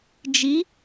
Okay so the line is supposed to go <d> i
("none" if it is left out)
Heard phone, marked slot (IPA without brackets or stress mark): d͡ʒ